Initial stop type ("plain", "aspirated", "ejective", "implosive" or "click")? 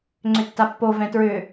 click